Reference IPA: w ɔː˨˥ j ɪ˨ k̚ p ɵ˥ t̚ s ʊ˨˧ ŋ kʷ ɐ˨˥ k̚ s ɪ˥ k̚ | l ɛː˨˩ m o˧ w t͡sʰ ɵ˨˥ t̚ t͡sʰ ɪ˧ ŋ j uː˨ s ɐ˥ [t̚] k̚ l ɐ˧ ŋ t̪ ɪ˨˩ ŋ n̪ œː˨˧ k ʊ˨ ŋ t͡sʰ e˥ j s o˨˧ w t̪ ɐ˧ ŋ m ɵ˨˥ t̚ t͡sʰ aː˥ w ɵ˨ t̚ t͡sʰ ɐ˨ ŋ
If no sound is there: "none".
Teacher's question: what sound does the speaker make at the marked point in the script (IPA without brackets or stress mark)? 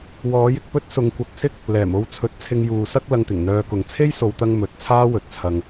none